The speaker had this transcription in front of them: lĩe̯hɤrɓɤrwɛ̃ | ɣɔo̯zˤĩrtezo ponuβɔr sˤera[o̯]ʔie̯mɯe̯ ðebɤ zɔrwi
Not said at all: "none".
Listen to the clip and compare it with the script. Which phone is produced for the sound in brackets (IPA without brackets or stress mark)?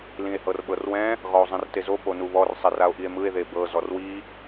o̯